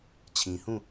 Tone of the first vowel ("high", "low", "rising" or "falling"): low